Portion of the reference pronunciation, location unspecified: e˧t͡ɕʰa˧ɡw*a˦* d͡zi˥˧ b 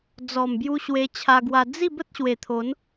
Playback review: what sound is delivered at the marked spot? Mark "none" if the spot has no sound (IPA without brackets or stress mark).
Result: a˧